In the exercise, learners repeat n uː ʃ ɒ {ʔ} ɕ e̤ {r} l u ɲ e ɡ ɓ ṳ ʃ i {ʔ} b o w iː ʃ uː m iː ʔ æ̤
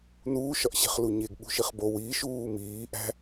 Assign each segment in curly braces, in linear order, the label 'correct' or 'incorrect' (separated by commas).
correct, incorrect, incorrect